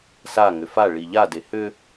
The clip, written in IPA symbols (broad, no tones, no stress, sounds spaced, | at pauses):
s a ŋ ʏ f a ɭ i ʎ a d e h ʏ